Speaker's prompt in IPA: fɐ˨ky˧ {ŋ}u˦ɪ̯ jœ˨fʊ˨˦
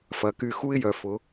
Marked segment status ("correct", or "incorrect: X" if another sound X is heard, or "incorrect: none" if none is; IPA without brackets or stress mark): incorrect: x